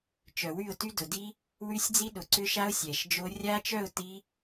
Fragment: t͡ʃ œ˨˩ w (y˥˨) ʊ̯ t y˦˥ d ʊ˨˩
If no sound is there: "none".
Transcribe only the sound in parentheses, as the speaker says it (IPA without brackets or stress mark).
y˥˨